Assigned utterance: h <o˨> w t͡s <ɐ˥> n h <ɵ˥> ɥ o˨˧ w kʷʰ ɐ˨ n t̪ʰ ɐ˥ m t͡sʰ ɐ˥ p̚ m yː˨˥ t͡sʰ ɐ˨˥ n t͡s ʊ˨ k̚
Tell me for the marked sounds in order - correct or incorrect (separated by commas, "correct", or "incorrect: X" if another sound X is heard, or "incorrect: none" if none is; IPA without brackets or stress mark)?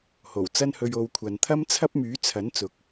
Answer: incorrect: o˨˩, correct, incorrect: ɵ˧